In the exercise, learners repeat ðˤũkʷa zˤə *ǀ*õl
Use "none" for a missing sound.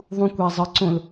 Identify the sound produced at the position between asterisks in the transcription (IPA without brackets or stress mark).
ǀ